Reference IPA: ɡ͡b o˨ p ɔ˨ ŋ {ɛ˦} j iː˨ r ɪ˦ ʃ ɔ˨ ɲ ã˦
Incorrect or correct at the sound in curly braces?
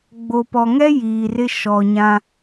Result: correct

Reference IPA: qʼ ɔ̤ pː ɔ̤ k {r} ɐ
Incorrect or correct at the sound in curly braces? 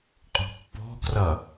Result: correct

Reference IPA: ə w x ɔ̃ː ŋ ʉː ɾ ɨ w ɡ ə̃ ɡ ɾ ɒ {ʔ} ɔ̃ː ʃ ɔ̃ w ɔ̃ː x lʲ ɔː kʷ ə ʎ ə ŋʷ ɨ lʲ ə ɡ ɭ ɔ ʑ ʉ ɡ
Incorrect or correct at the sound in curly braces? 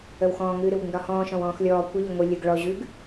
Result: incorrect: h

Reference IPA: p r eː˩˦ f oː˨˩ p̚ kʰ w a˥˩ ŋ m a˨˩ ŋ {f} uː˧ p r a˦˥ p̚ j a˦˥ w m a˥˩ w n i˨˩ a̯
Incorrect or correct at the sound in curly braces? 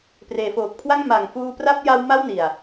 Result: correct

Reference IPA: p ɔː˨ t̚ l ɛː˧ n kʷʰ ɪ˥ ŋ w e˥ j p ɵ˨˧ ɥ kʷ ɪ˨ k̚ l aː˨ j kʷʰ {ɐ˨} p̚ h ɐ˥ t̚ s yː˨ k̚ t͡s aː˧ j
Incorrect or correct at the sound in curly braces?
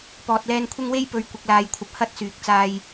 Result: correct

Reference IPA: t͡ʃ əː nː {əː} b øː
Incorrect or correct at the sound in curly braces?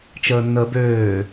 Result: correct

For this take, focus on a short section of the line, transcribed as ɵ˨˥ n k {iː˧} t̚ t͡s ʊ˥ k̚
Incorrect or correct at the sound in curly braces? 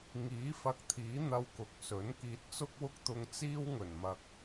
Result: correct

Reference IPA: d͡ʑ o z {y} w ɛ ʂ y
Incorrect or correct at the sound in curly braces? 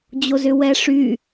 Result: incorrect: ʏ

